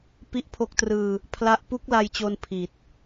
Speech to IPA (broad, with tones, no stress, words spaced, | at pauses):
pi˦˥ʔpʰo˦˥k̚trɯː˧ | pʰla˦˥ʔ pu˦˥k̚la˧jt͡ɕo˧n pʰi˨˩t̚